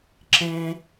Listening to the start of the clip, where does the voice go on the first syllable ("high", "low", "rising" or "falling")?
high